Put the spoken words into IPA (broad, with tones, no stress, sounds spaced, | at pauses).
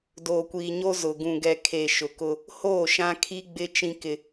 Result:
d oː˨ kʷ iː˨ ɲ o˦ z ʊ˨ ɡ ũ˨ ɡ ɛ˨ kʰ e˨ ʃ ʊ˨ k ʊ˦ | h oː˦˨ ʃ ã˦ kʰ i˦ ɡ͡b ɪ˦ t͡ʃ ĩ˦ k ɪ˦